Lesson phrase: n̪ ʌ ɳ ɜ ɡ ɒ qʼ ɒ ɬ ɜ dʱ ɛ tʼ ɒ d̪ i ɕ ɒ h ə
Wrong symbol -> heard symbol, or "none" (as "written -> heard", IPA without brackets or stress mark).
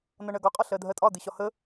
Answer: ɛ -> ɜ